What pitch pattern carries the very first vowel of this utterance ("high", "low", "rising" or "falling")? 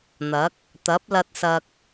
rising